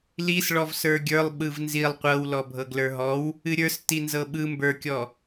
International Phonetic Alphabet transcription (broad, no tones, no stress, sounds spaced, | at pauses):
l i s ɭ ɔ v s ə˞ ɡʲ ə˞ lˠ ɓ ɯ v n z i lˠ qʷ ɤ w l ɔ bʱ ɤ ɡ l ə˞ ɦ ɔ w | ɨ ɾʲ ə˞ s t i n z ɤ ɓ ɯ m b ə˞ kʲ ɔ